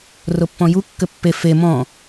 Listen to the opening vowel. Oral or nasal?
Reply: oral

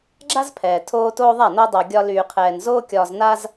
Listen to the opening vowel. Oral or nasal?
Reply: oral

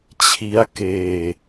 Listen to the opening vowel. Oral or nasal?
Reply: oral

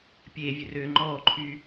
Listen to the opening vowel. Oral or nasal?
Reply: oral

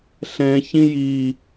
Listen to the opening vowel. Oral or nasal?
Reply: nasal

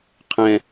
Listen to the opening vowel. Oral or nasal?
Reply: nasal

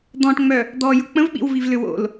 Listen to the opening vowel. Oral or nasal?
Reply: nasal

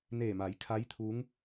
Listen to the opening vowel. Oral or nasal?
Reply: oral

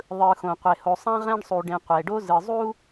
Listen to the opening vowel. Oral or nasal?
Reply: oral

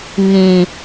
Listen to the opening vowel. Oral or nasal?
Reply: nasal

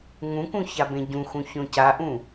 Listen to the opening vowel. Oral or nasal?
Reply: nasal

